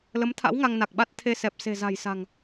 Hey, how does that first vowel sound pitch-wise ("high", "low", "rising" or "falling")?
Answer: rising